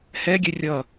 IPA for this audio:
hɛɡʲɛ rʲʌ

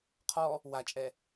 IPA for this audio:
qʰɔ | wat͡ʃʼɛ

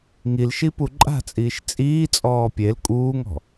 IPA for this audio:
ŋilʃipu ǃʼa̤t͡sʼiːʃ t͡sʼiːt͡sʼɔː pʲel kʼuːŋɔ̤

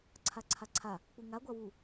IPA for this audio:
ǀʰaǀʰaǀʰa | k͡puŋa ɡʷawu

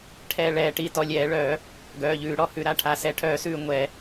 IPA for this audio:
ʈʰɛ˧˩ ɭɛː˧˩˧ʈi˩˧˩ tɔ˧˩lʲɛː˧˩˧ɭœː˧˩˧ | ɡœː˩˧˩ʎʉː˧˩˧ɽɔ˩˧˩hʉ˧˩˧ ɾa˧˩ ʈʰa˩˧˩sɛ˩˧˩ʈʰœː˧˩˧sʉː˧˩ ŋʷɛ˧˩˧

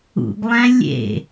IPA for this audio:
ṵɡlˠæ̃ lʲḛ

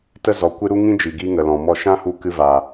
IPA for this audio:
tə˧zɔ˨kʷɨ˧ ɾu˦ŋĩ˦ d͡ʒi˨ɡi˧ ŋə˨lɔ̃˨ mɔ˦˨ ʃã˦hu˧ kɨ˧ vaː˨

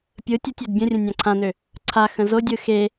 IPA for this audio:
pʲɯ tʲətʲød bʲə̃rʲə̃ nʲãǀʰãnø | ǀʰa xə̃zodʲɯ xe

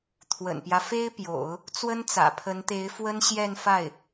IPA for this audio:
t̪ʰwə̰˨˩npjä˦ fe˥ɪ̯pjo̰˨˩˦ʊ̯ | t͡swə˥nt͡sä̰˨˩pʰə˧˥nt̪e˧˥ɪ̯ fwə˥nɕjɛ˥˧nfa˥˩ɪ̯

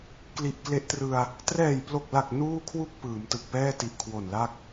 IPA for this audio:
kli˨˩ʔkle˦˥ʔtrɯ˧a̯ | trɛː˨˩jplo˨˩k̚la˨˩k̚ nuː˥˩kʰwu˥˩k̚ pɯː˩˦mtɯ˨˩k̚ pɛː˥˩ti˨˩ʔkʰwo˨˩nla˥˩k̚

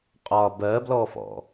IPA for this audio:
qʼɒ bɜblɔfɔ̰

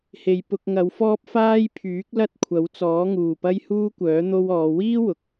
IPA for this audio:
he˧j pʊ˧k̚ŋɐ˨˧wfɔː˥p̚ faː˥jpʰyː˨˥k̚ lɐ˥t̚ kʷʰɐ˨˥wt͡sɔː˨˥ŋuː˨˩pɐ˥j huː˥kʷœː˨˥ n̪o˥wɔː˨˧ wiː˥ wʊ˨k̚

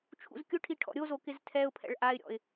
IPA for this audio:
t͡ʃʰṵzkʲʊʈʰi ʈʰɔ̰ɾʲozo kɪztʰɛʊ̯pʰɛ̰ɭ ʔaɪ̯ɾʲɔ̰ɪ̯

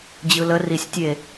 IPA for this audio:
d͡ʑɯlə risʲ tʲe

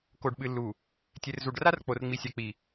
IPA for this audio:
ko˨ɖɓɨ˨lːu˨ | tʲe˨rzu˨ɖra˦r k͡po˨rŋ͡mi˨ sʲa˨k͡pi˨

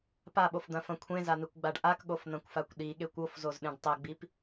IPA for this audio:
paɓofd̪ɐ̃fɐ̃ kʷʰẽzan̪ekʷɡ͡baɖ ʔakɠofn̪ɐ̃kʷfakʷ ɗiɠekʷ ofzozɗẽɖ tˤɐɡ͡bip

